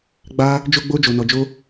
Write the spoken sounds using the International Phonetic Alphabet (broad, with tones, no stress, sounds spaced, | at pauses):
ɡ͡b a˦ | d͡ʒ o˦ ɡ͡b o˦ d͡ʒ o˧ n ɔ˧ d͡ʒ o˦